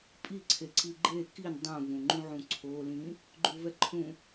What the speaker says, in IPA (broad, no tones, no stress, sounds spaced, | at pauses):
pʼ i ǀʰ e ǀ i ɡ͡ǃ e k i n dˤ ũ v ũ ŋ͡ǃ ũ ʕ ũ ǀʰ o l ĩ | ɡ͡ǃ u v ɛ ǃʰ ũ